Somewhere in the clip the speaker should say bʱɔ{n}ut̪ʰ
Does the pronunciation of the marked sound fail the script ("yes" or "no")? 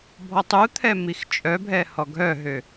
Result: yes